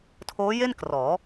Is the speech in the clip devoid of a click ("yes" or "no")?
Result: yes